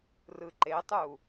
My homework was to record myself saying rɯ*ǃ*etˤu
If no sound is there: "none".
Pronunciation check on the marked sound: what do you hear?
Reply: ǃ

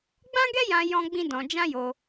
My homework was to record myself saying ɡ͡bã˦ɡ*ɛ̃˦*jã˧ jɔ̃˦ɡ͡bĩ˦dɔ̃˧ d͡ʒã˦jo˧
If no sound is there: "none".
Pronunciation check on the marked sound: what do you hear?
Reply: ɛ˦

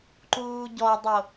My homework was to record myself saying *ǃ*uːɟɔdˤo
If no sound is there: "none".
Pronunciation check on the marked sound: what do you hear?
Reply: ǃ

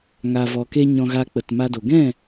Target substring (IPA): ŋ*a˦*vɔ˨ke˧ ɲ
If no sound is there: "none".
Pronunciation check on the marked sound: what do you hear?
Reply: a˨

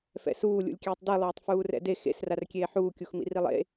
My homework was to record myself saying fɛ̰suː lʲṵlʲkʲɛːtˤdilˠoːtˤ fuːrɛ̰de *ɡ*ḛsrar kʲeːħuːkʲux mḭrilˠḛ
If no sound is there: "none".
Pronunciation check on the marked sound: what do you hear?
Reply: x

